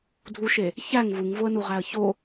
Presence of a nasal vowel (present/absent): absent